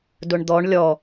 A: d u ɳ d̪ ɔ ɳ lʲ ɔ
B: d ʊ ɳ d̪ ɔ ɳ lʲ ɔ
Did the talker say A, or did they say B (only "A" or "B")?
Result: B